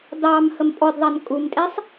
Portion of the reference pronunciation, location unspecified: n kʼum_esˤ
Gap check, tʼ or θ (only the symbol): tʼ